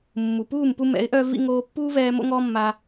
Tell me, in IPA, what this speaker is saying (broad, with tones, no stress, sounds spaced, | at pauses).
mː u˨ p uː˦˨ m p u˧ m ɛ̰˨˦ ɪ̯ ʔ œ˧ v ḭ˧ ŋ oː˧ pː uː˦ v ɛː˧ m o̰˦ ŋ ɔː˦ mː a˧